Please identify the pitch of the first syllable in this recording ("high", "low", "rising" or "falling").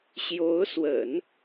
rising